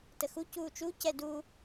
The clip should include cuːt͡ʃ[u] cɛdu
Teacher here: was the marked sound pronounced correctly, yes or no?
yes